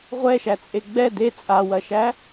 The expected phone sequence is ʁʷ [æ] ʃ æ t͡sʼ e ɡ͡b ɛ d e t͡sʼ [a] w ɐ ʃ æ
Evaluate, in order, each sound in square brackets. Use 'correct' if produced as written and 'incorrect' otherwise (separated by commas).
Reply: incorrect, correct